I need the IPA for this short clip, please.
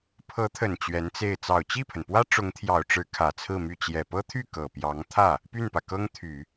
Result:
pʰ ɤ˧˥ t̪ʰ ə˨˩ n t͡ɕ ɥ ɛ˧˥ n t͡s e˥˩ ɪ̯ t͡s ɑ˨˩ ʊ̯ t͡ɕ i˥˩ pʰ ə˩ n p w ä˥ ʈ͡ʂ ʊ˧˥ ŋ t̪ʰ j ɑ˨˩ ʊ̯ ʈ͡ʂ ɻ̩˧˥ kʰ ä˨˩ t͡sʰ ɹ̩˥˧ m y˥˩ t͡ɕ j ɛ˨˩ p ɤ˥ t̪ʰ y˥˩ k ɤ˨˩ p j ɑ˧˥ ŋ t̪ʰ ä˥˩ | p y˥˩ n p ä˩ k ɤ˥ ŋ t̪ʰ y˨˩˦

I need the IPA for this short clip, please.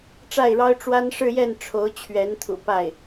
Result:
ʈ͡ʂ a˥˩ ɪ̯ ɻ ɑ˥ ʊ̯ ʈ͡ʂ w a˥ n ʂ ɻ̩˥˧ j ɛ˥˩ n ʈ͡ʂʰ o˧˥ ʊ̯ t͡ɕʰ ɥ ɛ˧˥ n t̪ʰ ṵ˨˩ p a˥˩ ɪ̯

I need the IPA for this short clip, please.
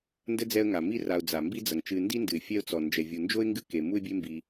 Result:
n d ɘ˥ d͡z ɛ˦ ə̯ ŋ a˩ m i˥ r a˨ ʊ̯ d͡z a˩ m b i˦ d͡z ɐ˩ ŋ t͡ʃ ɨ˨ n d i˥ n d ɨ˩ ɪ̯ fʲ ɛ˥ ʊ̯ t͡s ɔ˩ n d͡ʒ ɛ˩ vʲ u˩ n d͡ʒ o˥ ɪ̯ ŋ ɡ ɨ˦ k e˩ m u˦ ɪ̯ bʲ e˦ m b i˨

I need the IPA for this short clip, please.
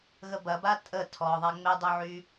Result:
ɣ ə b ɐ b a tʼ ə tʰ ɔ ðˤ a ŋ͡m ɪ dˤ ø ʕ y

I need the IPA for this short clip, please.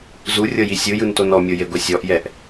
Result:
z u rʲ ɤ j i sʲ ɯ j ɯ n t o n ɔ mʲ o j e ɡʷ e sʲ ɔ ʔ j ɛ ʔ

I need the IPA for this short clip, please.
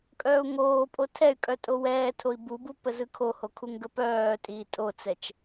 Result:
kʼ œː u̯ ŋ oː pʼ o tʰ ɛ y̯ kʼ œ tʼ o w ɛː tʰ o i̯ b u b u p ə z ɯ kʰ o h o kʰ u ŋ ɡ ə p œː tʼ iː tʼ o t͡s ɛ t͡ʃ

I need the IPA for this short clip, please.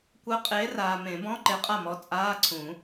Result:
kʷ ɜ˨˥ qʼ eː˨˥ r aː˨ m ẽ˨˩˦ b ɔ̃˧˥˧ ǃ e˨˥ qʼ a˥˩ m ɔ˨˥ t͡sʼ aː˧˥˧ ǀʰ ũ˨˩˦

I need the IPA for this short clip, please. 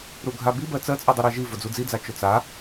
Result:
ɾ u ɡʱ a b i b ɜ t͡s ɜ t͡sʼ ɯ dˤ ɯ ɾ ɜ ʒ i v ʊ d͡z u d͡z i d͡z a t͡ʃ ʊ t͡s a

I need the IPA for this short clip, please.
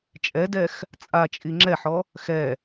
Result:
t͡ʃʼ ɛ d ɛ x | t͡sʼ a t͡ʃʼ i ŋ͡ǁ ɛ ħ ɔ | x ɛ

